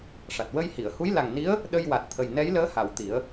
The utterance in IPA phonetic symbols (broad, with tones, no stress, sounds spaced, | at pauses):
ʂ a˨˩ t̚ w ə˧ j h i˨˩˨ ə̯ h u˧˥ j l a˨˩ ŋ n i˧˥ ə̯ | ɗ ə˧ j w a˨˩ t̚ t̪ʰ ə˨˩ j n ɛ˧˥ j l əː˧˥ h a˨˩˨ w t̪ i˨˩˦ ə̯